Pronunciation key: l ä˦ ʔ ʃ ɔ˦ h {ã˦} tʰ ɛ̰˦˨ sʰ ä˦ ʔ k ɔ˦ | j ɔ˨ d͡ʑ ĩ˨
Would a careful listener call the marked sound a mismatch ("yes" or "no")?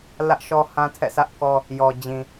no